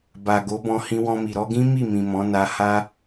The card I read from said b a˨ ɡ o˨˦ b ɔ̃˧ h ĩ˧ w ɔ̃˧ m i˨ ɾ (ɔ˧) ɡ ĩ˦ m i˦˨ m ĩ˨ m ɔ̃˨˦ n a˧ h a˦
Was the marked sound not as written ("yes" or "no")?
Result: no